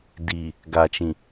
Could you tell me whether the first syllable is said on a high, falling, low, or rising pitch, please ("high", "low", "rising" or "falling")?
low